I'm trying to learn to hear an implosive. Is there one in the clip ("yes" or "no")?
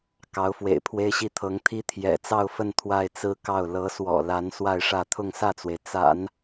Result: no